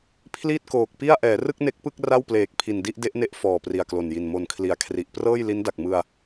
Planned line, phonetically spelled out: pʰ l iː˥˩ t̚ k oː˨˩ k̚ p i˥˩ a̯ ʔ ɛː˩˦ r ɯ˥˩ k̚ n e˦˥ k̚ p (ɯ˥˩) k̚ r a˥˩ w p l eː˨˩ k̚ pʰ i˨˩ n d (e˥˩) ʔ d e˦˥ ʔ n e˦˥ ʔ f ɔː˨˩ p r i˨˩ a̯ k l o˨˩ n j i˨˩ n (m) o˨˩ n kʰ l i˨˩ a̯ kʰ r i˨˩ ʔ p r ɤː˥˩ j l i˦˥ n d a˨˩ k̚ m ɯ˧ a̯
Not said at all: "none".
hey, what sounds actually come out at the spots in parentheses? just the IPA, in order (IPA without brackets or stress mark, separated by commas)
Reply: ɯ˥˩, i˥˩, m